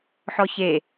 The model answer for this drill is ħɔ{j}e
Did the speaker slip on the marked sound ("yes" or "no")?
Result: yes